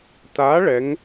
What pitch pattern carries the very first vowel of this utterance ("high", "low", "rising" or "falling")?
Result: rising